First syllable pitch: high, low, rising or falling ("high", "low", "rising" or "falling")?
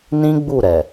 high